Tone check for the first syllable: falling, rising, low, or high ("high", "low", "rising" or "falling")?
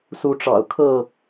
rising